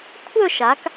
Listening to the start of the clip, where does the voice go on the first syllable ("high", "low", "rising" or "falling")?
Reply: falling